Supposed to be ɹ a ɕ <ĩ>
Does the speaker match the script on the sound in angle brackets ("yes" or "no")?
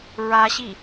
no